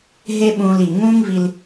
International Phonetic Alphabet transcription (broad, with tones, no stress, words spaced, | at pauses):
ɦe˦ɓũː˧li˨ ŋũː˦ŋvi˧l